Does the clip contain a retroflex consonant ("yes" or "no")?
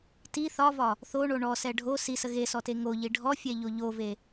yes